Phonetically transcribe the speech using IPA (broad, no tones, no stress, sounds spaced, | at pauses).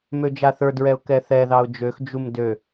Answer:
m ø d͡ʒ a θ ə˞ d ɹ ɛ ʊ̯ k ɛ θ ɛ ð ɑ ʊ̯ d͡ʒ ø x d͡ʒ u m d ø